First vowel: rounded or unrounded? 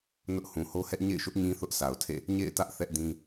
rounded